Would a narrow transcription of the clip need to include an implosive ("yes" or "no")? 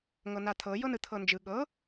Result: yes